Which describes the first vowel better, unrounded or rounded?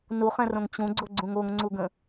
rounded